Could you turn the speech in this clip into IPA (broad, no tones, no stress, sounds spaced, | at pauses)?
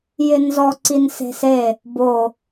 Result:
j ɪ n z ɔ ǀ i n s e̤ s e | b o